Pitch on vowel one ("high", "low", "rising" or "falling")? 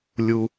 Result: low